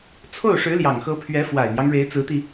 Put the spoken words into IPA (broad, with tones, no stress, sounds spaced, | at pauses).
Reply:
t͡sʰ o˥˩ ʊ̯ ʂ ɻ̩˧˥ l j ɑ˨˩ ŋ x ɤ˧˥ pʰ ɥ ɛ˧˥ f w a˨˩ ɪ̯ n̪ j ɑ˦ ŋ ɻ e˧˥ ɪ̯ t͡s ɹ̩˧˥ t̪ i˧